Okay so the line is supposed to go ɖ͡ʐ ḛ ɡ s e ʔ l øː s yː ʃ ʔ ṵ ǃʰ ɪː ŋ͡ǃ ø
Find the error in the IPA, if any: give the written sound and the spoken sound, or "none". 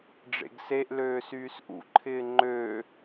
ʃ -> s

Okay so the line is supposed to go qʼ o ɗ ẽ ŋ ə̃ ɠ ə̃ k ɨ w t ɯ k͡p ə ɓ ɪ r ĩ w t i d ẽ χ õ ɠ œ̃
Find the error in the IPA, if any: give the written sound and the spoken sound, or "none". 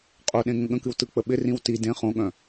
none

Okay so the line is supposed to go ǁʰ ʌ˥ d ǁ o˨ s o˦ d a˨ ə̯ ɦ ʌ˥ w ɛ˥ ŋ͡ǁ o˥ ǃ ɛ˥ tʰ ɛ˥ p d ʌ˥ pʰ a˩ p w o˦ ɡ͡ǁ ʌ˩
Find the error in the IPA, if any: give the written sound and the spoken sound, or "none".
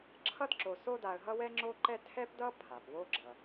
none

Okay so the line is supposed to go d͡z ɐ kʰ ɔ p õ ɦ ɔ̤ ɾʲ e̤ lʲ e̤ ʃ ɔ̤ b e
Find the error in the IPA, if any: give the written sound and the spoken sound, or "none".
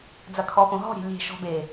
none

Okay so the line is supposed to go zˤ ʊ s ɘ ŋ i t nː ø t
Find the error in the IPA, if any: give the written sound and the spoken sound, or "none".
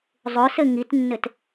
ø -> ɘ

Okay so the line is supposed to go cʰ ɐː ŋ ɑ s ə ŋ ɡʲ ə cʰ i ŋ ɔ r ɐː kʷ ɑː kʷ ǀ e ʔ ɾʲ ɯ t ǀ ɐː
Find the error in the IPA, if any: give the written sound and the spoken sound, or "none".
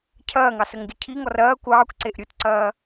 none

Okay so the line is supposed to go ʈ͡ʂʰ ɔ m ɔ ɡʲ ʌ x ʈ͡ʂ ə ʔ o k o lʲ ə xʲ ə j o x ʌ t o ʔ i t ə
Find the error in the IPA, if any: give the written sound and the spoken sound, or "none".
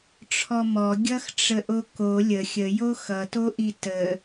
none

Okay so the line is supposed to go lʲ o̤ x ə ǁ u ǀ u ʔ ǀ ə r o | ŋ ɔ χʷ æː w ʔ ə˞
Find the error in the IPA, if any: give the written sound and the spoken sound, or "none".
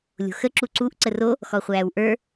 ŋ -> x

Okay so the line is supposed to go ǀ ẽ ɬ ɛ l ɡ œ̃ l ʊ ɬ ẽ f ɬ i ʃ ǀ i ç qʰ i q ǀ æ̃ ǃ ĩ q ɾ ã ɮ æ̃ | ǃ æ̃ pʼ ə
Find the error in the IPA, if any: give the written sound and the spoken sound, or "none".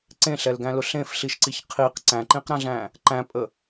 œ̃ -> æ̃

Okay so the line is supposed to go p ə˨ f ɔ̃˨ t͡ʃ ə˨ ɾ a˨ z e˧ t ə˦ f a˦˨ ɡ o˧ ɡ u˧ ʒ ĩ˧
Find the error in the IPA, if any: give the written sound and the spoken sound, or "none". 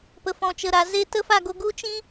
ʒ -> t͡ʃ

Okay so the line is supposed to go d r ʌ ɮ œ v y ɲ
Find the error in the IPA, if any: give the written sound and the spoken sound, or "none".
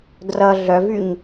none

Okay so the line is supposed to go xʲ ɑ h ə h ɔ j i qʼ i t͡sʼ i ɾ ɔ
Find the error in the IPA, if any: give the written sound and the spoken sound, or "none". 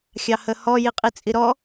none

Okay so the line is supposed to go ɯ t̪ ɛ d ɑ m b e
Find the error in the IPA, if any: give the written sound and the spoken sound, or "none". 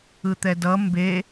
ɑ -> ʌ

